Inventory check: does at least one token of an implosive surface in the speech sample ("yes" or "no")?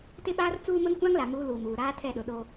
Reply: yes